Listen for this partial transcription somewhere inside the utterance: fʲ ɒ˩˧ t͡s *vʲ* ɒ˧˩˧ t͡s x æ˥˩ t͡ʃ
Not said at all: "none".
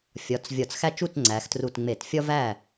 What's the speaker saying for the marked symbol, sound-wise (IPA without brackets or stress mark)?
vʲ